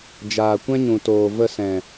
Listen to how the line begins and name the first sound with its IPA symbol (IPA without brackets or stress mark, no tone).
d͡ʒ